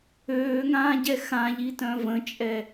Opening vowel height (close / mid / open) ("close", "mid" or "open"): mid